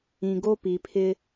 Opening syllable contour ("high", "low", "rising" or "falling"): low